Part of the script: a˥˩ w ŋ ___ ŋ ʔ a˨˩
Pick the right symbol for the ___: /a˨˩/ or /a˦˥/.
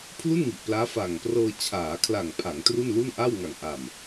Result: a˨˩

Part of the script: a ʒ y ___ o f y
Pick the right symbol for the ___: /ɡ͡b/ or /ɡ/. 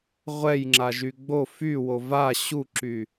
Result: ɡ͡b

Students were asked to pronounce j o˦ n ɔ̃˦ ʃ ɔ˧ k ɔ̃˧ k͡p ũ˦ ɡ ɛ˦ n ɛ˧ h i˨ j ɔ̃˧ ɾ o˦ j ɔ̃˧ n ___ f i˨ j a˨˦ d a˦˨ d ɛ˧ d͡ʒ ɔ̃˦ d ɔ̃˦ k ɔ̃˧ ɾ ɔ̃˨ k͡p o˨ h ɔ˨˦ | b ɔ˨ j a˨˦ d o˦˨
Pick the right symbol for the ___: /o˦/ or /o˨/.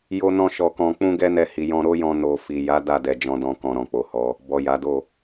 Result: o˨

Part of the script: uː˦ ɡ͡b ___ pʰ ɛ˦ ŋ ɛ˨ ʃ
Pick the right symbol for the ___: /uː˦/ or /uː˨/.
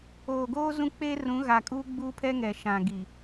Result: uː˦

